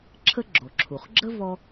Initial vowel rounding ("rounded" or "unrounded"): unrounded